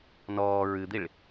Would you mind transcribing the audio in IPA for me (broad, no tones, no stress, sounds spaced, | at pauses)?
n ɔː ɹ ɨ d̪ i ɭ